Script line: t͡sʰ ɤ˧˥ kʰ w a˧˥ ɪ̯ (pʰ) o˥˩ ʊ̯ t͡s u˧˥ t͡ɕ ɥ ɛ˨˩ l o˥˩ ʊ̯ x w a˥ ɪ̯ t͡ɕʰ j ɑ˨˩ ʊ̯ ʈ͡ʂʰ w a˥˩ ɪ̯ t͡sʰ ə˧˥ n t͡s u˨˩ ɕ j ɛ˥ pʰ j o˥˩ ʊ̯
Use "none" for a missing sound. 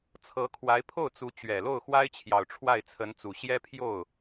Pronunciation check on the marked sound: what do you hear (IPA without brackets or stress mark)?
pʰ